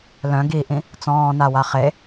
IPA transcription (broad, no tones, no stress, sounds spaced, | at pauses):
l œ̃ ɡ i ʔ ĩ | t͡s ɔ̃ː n a w a χ e